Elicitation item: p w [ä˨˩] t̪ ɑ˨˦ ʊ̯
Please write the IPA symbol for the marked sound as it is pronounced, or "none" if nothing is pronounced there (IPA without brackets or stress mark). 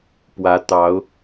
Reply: ä˨˦